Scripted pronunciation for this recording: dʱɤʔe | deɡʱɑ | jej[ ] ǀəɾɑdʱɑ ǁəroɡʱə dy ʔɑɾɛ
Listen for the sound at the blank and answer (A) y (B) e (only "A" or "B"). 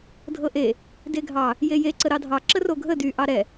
B